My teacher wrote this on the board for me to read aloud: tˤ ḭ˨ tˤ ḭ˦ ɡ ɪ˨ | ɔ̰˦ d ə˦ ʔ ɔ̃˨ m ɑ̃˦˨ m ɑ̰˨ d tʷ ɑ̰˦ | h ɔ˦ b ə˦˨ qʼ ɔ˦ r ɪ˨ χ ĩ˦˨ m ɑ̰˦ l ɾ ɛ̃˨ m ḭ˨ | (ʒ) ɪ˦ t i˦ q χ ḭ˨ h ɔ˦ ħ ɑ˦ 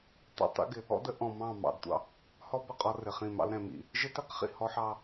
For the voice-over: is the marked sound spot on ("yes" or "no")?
yes